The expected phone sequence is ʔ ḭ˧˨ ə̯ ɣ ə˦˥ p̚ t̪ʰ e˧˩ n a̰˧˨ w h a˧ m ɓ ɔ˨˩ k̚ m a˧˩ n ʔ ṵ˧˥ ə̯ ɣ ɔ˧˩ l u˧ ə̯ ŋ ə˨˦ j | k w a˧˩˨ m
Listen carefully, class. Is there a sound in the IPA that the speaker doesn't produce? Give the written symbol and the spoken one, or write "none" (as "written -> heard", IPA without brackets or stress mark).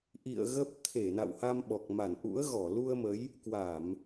ŋ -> m